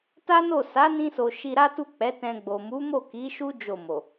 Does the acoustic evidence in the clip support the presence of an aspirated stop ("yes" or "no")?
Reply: no